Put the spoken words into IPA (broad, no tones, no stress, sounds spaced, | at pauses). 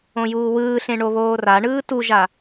õ j uː w ɯː ɬ ẽ ɳ o β oː r a ɳ ɯː t u ʒ a